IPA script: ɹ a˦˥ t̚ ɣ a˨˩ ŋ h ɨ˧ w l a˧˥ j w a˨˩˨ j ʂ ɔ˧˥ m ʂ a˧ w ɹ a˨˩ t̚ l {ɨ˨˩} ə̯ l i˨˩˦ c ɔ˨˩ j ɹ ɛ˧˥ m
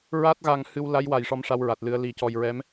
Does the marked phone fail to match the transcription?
yes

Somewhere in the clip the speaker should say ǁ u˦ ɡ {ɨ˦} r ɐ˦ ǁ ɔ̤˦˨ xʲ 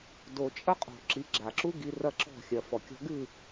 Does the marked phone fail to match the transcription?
yes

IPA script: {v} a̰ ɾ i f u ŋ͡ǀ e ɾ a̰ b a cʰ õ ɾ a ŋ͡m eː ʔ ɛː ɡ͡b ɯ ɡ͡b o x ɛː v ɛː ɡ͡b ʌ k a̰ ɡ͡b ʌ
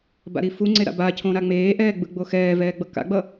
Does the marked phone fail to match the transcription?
yes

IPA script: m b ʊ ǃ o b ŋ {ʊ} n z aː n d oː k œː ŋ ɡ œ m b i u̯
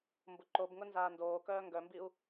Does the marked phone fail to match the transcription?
no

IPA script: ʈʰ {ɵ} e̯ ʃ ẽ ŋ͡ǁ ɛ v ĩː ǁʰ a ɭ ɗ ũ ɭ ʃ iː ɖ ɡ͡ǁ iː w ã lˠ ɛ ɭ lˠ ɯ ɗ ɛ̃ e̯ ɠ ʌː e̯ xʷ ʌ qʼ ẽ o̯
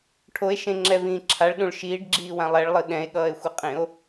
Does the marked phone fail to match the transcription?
yes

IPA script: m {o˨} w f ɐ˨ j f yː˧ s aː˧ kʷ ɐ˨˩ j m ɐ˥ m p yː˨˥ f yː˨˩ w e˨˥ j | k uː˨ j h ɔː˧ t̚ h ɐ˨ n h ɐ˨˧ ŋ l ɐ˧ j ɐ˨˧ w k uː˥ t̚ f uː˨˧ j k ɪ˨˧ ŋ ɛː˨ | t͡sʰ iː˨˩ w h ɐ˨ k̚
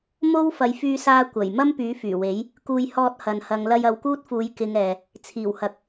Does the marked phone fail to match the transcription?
yes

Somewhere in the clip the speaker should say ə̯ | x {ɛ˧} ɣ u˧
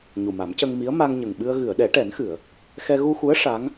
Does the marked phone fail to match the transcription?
no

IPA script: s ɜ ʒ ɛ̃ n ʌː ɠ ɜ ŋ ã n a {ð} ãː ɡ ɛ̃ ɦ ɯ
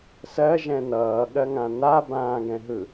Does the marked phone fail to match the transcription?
yes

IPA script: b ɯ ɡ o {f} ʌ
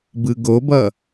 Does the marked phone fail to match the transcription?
yes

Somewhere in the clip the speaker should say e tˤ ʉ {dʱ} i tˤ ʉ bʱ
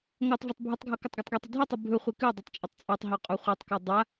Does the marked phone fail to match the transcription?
no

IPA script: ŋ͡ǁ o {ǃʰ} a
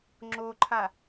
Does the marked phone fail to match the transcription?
no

